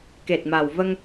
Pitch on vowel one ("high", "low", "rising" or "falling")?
low